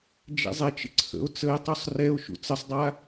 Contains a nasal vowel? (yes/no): no